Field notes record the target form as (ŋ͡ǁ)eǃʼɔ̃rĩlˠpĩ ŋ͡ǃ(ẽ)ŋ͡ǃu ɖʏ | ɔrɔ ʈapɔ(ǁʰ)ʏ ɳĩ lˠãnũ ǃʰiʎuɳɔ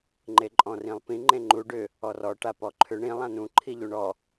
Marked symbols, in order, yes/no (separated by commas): no, yes, no